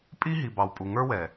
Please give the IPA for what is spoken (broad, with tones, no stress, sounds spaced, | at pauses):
pʼ i˦ ɦ i˨ b ɑ˨ w pʼ u˨ ŋ ə˞˦ w ɛ˨